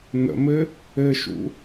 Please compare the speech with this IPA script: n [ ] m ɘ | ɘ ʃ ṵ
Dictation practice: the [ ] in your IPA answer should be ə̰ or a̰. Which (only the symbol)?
ə̰